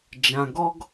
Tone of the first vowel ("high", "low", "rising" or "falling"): low